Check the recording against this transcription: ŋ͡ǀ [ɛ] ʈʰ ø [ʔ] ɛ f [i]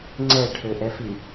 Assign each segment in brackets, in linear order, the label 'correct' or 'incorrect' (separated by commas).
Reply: correct, correct, correct